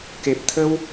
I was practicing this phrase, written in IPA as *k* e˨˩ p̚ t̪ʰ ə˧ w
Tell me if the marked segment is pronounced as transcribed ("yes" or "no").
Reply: yes